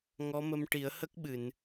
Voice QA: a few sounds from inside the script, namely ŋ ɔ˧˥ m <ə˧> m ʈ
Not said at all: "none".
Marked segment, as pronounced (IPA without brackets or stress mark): ə˧